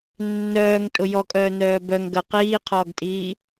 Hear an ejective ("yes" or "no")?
yes